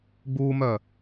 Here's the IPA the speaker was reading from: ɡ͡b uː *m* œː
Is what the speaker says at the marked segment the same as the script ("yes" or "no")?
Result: yes